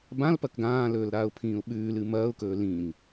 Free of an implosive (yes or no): no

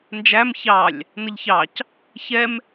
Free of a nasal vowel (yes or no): yes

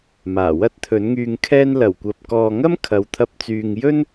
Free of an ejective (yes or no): yes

